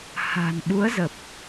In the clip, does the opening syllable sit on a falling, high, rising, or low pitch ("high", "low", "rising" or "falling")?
low